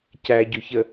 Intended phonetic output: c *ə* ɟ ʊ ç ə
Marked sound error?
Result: yes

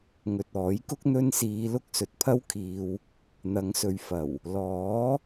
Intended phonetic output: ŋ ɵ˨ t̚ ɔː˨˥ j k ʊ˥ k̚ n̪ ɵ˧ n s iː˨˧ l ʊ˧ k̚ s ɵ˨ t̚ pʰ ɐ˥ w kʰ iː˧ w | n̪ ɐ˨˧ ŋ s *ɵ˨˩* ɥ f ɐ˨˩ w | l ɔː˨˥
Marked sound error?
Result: yes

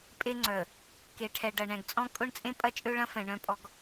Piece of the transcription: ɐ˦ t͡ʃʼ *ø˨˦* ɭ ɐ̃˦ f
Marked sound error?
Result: yes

